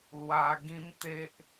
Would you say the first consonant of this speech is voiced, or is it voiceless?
voiced